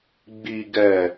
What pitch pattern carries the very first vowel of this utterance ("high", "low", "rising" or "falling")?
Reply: low